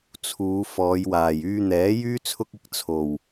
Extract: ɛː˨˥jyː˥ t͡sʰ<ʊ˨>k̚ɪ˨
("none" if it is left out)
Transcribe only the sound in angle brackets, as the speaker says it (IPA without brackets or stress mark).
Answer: ʊ˥